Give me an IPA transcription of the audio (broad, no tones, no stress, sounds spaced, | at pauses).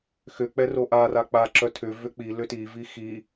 x ʏ k͡p ɛ r o ʔ a r a k͡p a ǁ œ tʰ ʏ v ʏ k͡p i l ʏ t i v i x i